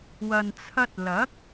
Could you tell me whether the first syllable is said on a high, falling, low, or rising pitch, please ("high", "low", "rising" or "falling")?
low